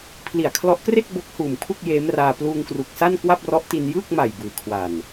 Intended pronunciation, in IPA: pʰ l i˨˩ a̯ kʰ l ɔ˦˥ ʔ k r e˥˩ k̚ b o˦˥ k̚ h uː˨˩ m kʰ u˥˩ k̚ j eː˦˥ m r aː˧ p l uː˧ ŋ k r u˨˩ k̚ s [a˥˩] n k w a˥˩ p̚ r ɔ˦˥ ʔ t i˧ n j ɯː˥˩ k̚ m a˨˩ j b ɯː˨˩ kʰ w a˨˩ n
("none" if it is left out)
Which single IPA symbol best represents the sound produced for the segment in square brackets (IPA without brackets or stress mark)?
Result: a˥˩